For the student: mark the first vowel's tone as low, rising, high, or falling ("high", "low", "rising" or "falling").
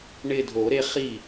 falling